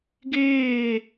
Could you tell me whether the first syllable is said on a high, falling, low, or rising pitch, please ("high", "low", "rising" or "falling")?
falling